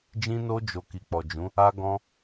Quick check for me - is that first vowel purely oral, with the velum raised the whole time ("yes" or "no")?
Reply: no